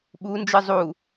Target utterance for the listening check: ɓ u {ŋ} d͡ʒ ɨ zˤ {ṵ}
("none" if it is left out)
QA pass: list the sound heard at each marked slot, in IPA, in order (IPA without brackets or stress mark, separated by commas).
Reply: n, u